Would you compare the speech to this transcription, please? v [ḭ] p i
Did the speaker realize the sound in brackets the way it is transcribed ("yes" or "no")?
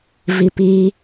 no